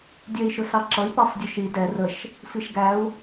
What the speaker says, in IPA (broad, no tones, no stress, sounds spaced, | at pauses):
dʲ ɛ i̯ ʃ ʊ s ɑ ǁ ʌ i̯ p ɑ f dʲ ʊ ʃ i d ɛ r ə ʃ | f i ʃ ɡ æ u̯